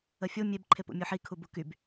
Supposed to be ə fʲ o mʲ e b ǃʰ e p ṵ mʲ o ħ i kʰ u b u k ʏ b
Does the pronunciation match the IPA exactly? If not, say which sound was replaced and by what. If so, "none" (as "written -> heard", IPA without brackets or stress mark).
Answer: ʏ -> y